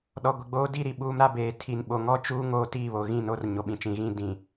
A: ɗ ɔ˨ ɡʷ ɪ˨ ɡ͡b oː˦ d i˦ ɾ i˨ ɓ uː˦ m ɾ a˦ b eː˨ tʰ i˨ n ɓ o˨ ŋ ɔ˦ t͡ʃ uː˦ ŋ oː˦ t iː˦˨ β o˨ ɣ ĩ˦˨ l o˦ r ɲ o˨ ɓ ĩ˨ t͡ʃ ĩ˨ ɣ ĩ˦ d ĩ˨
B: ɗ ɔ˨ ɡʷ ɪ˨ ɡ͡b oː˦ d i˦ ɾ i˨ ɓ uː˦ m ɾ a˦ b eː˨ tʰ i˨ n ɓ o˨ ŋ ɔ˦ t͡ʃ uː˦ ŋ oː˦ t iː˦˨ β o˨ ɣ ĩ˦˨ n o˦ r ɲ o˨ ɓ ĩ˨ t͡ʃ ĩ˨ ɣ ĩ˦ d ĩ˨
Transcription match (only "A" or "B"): B